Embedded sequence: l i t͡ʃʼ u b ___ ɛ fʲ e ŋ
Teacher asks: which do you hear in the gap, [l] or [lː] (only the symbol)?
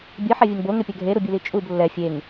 lː